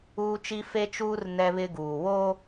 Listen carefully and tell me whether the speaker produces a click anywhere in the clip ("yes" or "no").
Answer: no